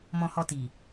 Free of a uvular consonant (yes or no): yes